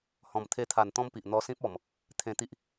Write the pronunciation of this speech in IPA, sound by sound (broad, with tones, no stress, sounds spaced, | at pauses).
h ɔ̃˨˩ m t̪ʰ e˧ t̪ʰ a˨˩ n t̪ ɔ̃˦ m p i˨ ʔ n̪ ɔ˧ s ĩ˦ p̚ ɔ˨˩ m | t̪ʰ ẽ˧ t̪ i˦ ʔ